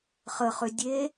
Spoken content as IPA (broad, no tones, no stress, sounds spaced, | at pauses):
χ ə χ ʏ dʲ e